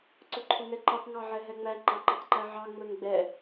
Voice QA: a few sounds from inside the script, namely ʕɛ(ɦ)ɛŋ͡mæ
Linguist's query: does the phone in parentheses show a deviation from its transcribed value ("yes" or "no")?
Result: no